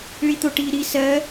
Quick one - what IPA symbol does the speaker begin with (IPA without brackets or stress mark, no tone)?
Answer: ɭ